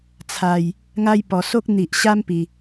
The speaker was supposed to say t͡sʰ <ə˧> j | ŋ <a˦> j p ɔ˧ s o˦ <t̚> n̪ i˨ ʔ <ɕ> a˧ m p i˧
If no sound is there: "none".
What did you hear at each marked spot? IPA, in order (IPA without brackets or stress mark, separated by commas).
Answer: a˧, a˦, k̚, ɕ